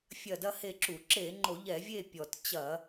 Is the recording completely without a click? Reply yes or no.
no